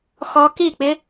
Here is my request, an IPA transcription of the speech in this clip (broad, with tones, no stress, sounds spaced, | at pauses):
x ɔ˦˥ k i˥˨ k͡p ɪ˦˥